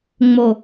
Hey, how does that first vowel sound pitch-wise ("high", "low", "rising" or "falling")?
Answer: low